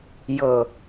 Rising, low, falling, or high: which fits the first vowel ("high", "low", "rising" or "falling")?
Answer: low